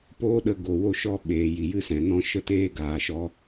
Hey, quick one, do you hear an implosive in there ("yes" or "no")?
yes